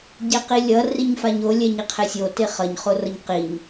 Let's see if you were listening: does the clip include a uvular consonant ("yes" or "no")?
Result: yes